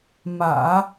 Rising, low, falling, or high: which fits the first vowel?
low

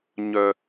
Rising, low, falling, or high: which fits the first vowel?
low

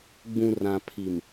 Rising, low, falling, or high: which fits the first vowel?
low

